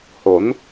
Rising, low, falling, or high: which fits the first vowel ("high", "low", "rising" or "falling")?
rising